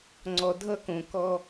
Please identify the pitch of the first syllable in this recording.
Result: low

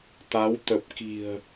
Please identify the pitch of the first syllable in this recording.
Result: rising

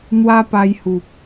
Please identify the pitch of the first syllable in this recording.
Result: high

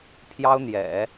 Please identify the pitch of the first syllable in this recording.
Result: high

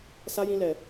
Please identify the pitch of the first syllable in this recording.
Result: high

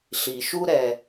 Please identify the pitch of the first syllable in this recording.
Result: low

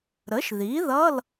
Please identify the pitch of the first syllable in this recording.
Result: rising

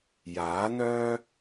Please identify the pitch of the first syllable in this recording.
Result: rising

